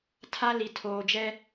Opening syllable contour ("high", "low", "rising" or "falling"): high